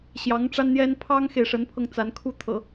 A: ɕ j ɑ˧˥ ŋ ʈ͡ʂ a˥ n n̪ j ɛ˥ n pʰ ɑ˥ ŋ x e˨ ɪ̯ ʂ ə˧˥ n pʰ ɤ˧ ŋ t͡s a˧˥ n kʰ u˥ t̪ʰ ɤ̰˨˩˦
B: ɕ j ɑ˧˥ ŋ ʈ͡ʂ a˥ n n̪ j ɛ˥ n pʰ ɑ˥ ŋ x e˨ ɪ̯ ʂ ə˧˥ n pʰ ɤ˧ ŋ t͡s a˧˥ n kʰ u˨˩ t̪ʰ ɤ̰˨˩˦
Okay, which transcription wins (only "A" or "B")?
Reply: A